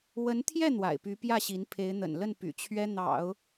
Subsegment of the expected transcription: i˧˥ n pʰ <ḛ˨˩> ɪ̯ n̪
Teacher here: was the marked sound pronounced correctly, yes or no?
no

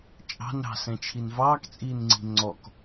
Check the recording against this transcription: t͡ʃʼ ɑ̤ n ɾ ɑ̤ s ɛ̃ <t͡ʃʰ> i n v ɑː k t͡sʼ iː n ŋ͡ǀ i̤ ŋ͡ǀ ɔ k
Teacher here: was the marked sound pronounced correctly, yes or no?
yes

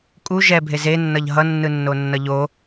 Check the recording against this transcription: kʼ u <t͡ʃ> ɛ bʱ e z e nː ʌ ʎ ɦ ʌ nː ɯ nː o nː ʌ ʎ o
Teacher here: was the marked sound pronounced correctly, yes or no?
no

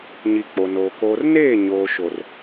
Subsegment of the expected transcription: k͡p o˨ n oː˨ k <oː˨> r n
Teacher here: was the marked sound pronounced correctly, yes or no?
yes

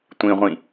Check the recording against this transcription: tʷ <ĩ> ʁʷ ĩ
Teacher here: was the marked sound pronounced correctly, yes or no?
yes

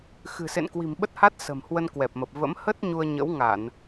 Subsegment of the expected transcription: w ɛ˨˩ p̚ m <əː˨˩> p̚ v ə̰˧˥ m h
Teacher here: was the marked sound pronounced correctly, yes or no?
no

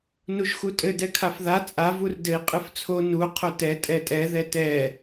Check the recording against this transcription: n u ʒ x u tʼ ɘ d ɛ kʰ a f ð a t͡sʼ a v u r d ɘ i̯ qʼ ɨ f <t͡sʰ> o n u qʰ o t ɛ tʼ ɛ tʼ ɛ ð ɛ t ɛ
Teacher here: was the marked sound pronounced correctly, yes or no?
yes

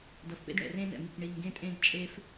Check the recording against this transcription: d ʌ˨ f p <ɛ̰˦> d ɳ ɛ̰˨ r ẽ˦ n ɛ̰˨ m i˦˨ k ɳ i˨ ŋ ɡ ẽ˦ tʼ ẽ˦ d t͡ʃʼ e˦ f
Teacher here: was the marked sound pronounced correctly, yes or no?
no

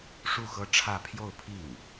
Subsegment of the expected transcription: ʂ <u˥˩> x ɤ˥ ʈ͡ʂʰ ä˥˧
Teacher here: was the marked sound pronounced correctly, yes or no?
yes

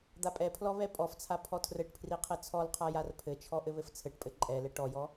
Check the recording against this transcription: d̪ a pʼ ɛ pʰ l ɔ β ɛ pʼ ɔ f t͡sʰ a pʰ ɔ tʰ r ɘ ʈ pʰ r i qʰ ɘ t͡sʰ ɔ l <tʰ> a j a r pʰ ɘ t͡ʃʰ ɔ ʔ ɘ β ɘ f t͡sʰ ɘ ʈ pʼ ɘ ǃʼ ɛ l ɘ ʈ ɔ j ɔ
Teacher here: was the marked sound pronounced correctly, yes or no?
no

